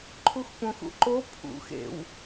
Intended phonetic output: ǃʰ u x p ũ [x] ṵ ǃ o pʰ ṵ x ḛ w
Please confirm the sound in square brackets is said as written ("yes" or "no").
yes